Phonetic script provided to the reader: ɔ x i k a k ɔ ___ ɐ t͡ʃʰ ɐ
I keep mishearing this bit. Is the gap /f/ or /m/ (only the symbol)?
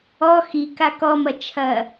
m